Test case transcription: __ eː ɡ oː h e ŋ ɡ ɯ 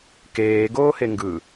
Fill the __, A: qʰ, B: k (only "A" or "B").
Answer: B